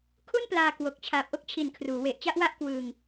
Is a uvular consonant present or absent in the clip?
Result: absent